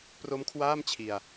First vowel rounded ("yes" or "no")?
yes